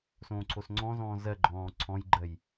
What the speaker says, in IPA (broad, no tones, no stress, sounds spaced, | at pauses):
s õː ǀʰ o s ŋ͡ǀ ɔ̃ z ɔ̃ː z ɜ ɡ͡ǃ ɔ̃ː ǀʰ ɔ̃ j ɡ͡ǃ ɜ j